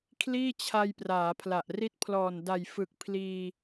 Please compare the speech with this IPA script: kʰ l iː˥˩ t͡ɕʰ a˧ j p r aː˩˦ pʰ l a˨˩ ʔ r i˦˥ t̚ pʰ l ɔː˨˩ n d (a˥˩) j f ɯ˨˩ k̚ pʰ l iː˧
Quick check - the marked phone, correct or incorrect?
incorrect